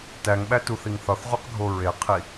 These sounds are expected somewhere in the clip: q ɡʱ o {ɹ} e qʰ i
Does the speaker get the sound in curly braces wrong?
no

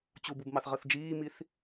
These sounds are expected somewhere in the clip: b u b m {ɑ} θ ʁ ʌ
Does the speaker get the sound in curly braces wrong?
no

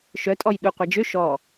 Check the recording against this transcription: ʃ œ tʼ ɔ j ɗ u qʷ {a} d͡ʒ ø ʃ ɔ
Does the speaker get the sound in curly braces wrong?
no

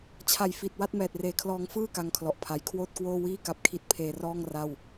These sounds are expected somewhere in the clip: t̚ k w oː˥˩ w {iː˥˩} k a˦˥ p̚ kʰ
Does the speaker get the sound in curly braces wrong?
no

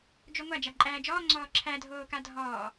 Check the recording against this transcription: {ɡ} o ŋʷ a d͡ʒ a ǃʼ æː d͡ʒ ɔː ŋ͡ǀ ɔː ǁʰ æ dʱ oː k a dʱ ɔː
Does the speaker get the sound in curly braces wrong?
yes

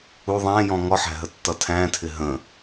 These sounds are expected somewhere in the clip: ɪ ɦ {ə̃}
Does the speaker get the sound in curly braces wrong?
no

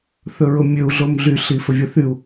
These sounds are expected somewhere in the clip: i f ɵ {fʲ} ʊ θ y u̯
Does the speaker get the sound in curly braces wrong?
yes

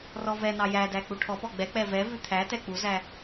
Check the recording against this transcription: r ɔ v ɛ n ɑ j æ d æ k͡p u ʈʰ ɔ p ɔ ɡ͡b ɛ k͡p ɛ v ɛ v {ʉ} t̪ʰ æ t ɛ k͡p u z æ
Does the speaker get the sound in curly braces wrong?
no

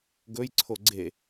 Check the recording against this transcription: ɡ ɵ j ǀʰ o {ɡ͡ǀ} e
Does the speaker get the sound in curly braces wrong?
no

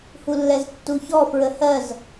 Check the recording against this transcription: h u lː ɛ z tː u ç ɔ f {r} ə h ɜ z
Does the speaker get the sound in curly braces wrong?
yes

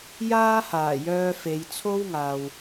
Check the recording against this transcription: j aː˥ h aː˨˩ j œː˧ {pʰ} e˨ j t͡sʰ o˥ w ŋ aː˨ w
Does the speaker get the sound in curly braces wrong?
yes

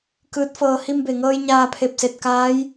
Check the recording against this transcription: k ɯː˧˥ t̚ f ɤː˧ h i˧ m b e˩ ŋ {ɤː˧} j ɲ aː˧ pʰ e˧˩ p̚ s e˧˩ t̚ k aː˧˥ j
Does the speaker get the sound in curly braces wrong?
no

